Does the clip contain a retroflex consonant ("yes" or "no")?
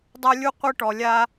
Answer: yes